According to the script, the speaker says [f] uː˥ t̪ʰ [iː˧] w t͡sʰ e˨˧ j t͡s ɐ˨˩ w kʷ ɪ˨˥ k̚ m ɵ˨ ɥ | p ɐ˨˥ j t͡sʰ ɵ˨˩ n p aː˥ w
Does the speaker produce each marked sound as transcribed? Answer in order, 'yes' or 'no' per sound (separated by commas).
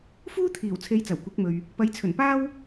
yes, no